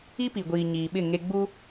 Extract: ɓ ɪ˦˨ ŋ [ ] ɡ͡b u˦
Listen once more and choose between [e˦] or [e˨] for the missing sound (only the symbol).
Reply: e˦